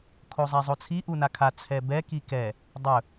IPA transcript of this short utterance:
kʰ o zˤ ɛ zˤ o t͡sʰ i ʔ u n a kʰ a t͡sʰ ɛ b ɛ k i k ɛ | dˤ ɵ

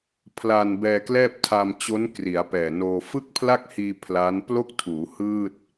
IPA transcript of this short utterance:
pʰ l a˧ n b ɛː˧ k l ɛː˥˩ p̚ tʰ a˧ m t͡ɕ o˦˥ n k r i˩˦ a̯ p ɛː˨˩ n oː˧ f ɯ˥˩ k̚ pʰ l a˥˩ k̚ h iː˧ pʰ l a˦˥ n p l o˥˩ k̚ tʰ uː˩˦ h ɯː˥˩ t̚

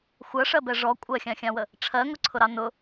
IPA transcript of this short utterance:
xʷ ɜ ʂ ɜ b ɛ ʐ ɔ kʷʼ ɜ xʲ ɑ̃ xʲ ɑ̃ w ə | ʈ͡ʂʰ ɜ ŋ ʊ ǀʰ ʊ ɾ ɑ n ʊ

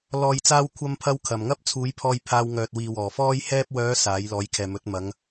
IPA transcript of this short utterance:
l ɔː˨ j t͡s aː˧ w kʷʰ ɐ˧ m pʰ ɐ˧ w kʰ ɐ˨˩ m ŋ ɐ˥ p̚ t͡sʰ uː˨˥ j pʰ ɔː˧ j pʰ aː˧ w ŋ œː˨ t̚ w iː˨ w ɔː˨˩ f ɔː˥ j h ɛː˧ p̚ w œː˨˧ s aː˨˥ j l ɔː˨˥ j kʰ ɛː˨ m ɵ˨˥ t̚ m ɐ˨˧ ŋ

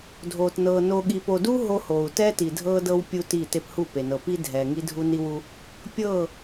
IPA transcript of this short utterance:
dʱ oː˨ t n ɤː˨ n o˨ ɠ i˨ p o˨ d u˦ ɦ o˦ h oː˨ u̯ t ɛː˦ t i˨ dʱ ɤː˦ d ɤ˦ w pʲ u˦ t iː˦˨ t e˦ p h u˦˨ p e˨ n ɤ˨ p i˦ dʱ ɛː˨ ŋ i˦ dʱ u˦ n i˦ w u˦ | pʲ ɤː˦˨

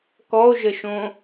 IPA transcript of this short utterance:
k ɔ o̯ ʒ ə ʃ õ

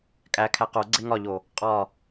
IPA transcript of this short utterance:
kʼ æ kʰ æ q o ɡ͡ǀ e ŋ ɒ ʎ o | qʼ ɒ

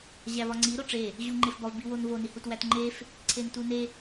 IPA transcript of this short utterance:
ʑ æ v ɒ ŋ͡ǀ i ɾ o ʈ͡ʂ e | ʑ u ŋ͡ǃ e f b ɒ v b i w o n v o n i h u t w æ t ŋ͡ǃ e f | ǀʰ e n t u n e

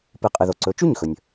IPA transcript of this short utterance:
p ɨ˩˥ qʼ ɨ˩ ð o˩ ǀ ɵ˩˥ t͡ʃ ʉ˥˩ ɲ x ɵ˩ nʲ

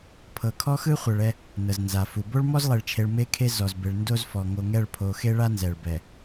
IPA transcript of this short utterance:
pʰ ɤ˨ kʰ ɔ˦ x ɯ˦ χʷ ɛ˨ ɭ ɛ˦ | n ɤ˨ z n z a˨ f u˨ b o˦ ɭ m ɔ˦ z lˠ e˨ ɭ t͡ʃʰ e˨ ɭ m e˦ kʰ e˦ z ɔ˨ z b e˨ ɭ n d o˦ z f ɔ˨ ŋ o˨ ŋ ɛ˦˨ ɭ pʰ o˨ x e˦ ɭ a˦ n z ɛ˨ ɭ b ɛ˨

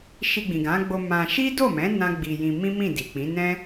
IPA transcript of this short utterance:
ʃ i˧ ɡ͡b ĩ˨ ɡ ã˨˦ ɡ͡b o˧ m ã˧ ʃ i˦ d o˦˨ m ɛ̃˨˦ n ã˦ ɡ͡b i˧ j ĩ˧ m ĩ˦ m ĩ˦˨ d i˨ k͡p ĩ˨˦ n ɛ̃˦

